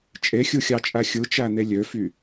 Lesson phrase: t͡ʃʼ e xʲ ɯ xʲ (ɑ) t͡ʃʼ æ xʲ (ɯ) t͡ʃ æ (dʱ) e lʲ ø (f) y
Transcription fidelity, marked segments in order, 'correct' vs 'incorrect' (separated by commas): correct, correct, incorrect, correct